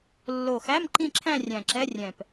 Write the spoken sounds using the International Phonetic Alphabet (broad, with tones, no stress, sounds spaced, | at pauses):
lː o˨˩ x æ˧˥˧ m ǃ ĩ˥˧ ǁʰ æ̃˥˧ rʲ æ̃˨˩ ǁ ɛ˧˥˧ rʲ ɛ̃˨˩ p